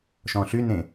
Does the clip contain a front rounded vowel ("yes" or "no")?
yes